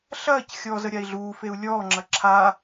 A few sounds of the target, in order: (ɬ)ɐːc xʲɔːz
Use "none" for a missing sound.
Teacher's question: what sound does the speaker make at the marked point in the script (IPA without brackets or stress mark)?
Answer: ɬ